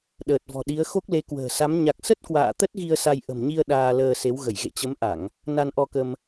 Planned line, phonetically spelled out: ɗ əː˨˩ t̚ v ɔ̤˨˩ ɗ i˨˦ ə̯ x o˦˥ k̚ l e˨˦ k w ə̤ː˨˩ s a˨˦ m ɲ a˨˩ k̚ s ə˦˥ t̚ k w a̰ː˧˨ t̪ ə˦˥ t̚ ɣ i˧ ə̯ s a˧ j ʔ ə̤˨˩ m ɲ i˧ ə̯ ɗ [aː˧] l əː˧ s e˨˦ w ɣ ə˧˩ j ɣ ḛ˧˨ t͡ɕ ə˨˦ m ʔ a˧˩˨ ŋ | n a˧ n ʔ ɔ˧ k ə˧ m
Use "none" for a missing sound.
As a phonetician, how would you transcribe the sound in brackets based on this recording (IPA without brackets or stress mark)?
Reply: aː˧